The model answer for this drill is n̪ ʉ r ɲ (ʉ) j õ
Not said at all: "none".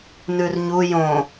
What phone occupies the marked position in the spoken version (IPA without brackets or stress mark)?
u